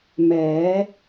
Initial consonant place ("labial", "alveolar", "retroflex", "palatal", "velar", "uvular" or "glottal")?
labial